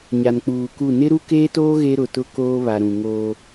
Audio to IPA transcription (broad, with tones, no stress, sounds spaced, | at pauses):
ɲ a˨ n k͡p uː˨ k u˦˨ n ɪ˦ ɾ u˦ k eː˦ t oː˦ ɣ e˦ ɾ ʊ˨ t ʊ˦ k oː˦ β a˨ ɾ ũ˨ ŋ oː˦